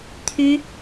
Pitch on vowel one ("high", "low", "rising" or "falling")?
high